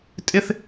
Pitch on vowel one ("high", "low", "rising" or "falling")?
high